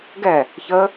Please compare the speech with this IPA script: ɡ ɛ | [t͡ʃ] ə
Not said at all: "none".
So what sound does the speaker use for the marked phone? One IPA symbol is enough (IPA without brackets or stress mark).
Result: ç